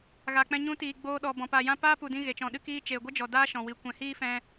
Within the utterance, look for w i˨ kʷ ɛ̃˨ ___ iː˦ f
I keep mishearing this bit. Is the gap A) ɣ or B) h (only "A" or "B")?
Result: B